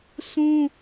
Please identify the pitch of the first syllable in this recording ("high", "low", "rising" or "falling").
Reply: high